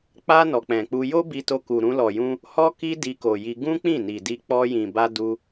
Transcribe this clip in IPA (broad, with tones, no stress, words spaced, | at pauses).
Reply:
k͡pa˧ nɔ˨k͡pɛ̃˨k͡pu˧ jo˦bi˧to˧ku˨ ɾũ˧lɔ˨jũ˧ | hɔ˦ki˦ di˧ko˨ji˧ ɡũ˦k͡pĩ˦˨ni˨di˧ k͡pɔ˧jĩ˨ba˧ du˧